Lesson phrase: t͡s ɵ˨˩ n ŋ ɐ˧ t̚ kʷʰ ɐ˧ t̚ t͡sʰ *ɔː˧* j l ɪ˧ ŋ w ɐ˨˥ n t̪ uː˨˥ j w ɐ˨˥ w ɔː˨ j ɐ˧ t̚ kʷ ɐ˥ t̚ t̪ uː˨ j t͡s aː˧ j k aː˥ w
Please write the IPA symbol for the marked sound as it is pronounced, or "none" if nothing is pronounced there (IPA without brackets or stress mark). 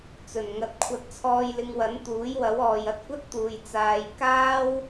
ɔː˧